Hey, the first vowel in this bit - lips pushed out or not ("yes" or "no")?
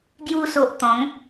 yes